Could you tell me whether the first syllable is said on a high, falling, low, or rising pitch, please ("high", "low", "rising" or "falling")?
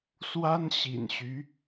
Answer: high